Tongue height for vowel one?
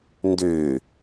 mid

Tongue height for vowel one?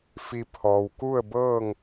high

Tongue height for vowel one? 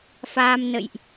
low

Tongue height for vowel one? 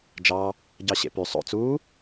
low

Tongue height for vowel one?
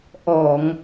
mid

